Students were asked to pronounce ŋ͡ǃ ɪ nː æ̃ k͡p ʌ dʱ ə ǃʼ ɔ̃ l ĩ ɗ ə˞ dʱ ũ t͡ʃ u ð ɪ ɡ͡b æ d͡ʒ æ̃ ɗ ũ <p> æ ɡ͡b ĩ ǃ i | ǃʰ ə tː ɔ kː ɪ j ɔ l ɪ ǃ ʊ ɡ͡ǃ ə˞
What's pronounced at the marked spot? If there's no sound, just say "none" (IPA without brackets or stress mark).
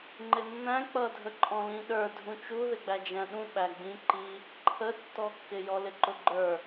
ɓ